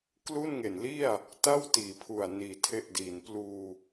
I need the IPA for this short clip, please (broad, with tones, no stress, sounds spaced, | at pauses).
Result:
k l u˥˩ n ŋ e˨˩ n l i˥˩ a̯ | t a˥˩ w t iː˨˩ pʰ u˨˩ a̯ n iː˨˩ tʰ e˦˥ ʔ d iː˨˩ n p l uː˧